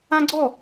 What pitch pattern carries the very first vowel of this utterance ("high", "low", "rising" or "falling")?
high